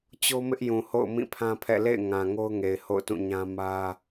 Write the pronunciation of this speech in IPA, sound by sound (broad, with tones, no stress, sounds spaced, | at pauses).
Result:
t͡ɕ o˦ m ɪ˦ ʔ j ũ˨ h o̰˦˨ ʊ̯ m ĩ˦˨ pʰ ã˦ pʰ ɛ̰˦˨ l ḛ˦˨ ɪ̯ ŋ ã˨ ŋ o˦ ʊ̯ ŋ e˨ ɪ̯ h o̰˦˨ ʊ̯ t ũ˦˨ ɲ ã˦ m ä˦